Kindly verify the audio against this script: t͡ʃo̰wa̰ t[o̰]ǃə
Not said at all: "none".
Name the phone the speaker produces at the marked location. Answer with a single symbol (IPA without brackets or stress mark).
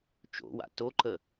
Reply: o